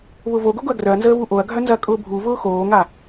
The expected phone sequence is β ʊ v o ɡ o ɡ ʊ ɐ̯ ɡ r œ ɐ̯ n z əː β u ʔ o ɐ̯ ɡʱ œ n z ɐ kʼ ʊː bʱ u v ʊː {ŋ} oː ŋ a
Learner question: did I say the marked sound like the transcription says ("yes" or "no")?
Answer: no